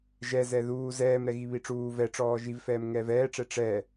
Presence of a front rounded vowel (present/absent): absent